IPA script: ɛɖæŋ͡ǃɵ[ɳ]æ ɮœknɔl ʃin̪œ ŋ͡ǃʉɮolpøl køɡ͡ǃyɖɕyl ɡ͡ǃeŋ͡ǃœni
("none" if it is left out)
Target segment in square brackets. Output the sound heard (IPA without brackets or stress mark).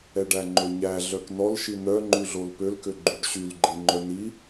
ɲ